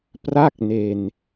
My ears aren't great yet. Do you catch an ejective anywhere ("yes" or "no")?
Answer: no